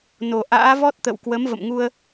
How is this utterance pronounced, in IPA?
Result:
n o˨˩ ʔ a̰ː˧˥ v ɔ˦˥ t̚ t̪ ə̰˧˨ w k w ə˨˦ m v ə̰˧˨ m ŋ u˧ ə̯

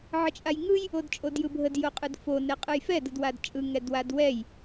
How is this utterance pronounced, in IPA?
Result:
ʕ ə t͡ʃʼ a j ŋ ɯ j | o d t͡ʃʼ o d j ɯ bʱ ə d j o qʼ ɯ d f o n ɛ qʼ ɯ j f ɛ d ɯ d w a d t͡ʃʼ ɯ ŋ ɛ d w a d w ɛ j

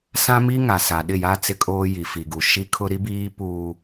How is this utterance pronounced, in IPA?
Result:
s ã˦ m i˦ ŋ a˨ s a˨ ɗ ɪ˦˨ j a˦ t͡s ɪ˦ kʼ oː˦ j i˨ f i˨ ɡ u˨ ʃ i˦ kʰ ʊ˦ ɾ i˦ b iː˦ p uː˦

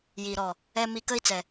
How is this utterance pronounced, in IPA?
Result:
j i˨ ɾ ɔ˨ | ɛ˦ m i˦ k ə˦ i̯ t͡s ɛ˨

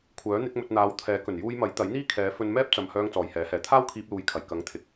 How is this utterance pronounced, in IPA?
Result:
kʷʰ œː˨˥ n̪ ɪ˨˥ k̚ m ɵ˧ t̚ n̪ aː˨˧ w t̪ʰ ɛː˨˥ k ɵ˨˩ n j uː˧ j m ɐ˨˥ j t̪ ɐ˨˥ j n̪ iː˥ kʰ ɛː˨˧ f ɵ˧ n m ɛː˥ p̚ t͡s ɐ˨ m h œː˧ ŋ t͡s ɔː˨ j h ɛː˨˥ h ɛː˨ t̪ʰ aː˥ w kʰ iː˧ p̚ l uː˨˥ j kʰ ɐ˨˩ j k ɐ˨˥ ŋ t̪ʰ ɪ˨ k̚

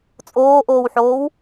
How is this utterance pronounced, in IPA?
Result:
t͡sʼ oː ʔ oː w ħ oː w

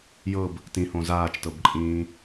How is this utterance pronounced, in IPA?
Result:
j ɤ b | t ĩ h õ z aː t͡ʃ t ɤ b ǃʼ ĩː

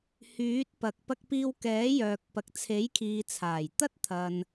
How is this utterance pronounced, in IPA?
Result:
h yː˨˥ t̚ p ɐ˨ k̚ p ɐ˧ k̚ p iː˧ w k ɛː˨˥ j œː˨ k̚ p ɐ˨ k̚ t͡sʰ e˨˥ j kʰ iː˨ t͡sʰ aː˨˩ j t̪ ɐ˥ t̚ t̪ʰ ɐ˨ n

